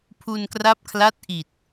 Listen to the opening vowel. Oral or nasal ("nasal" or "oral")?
oral